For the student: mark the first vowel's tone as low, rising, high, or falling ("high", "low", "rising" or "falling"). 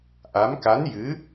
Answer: rising